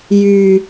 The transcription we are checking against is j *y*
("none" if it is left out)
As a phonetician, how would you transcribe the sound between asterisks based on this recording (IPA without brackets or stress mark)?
y